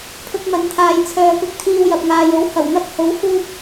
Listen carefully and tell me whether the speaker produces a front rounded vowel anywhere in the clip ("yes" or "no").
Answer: yes